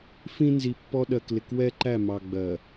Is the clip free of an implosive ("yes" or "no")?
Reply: no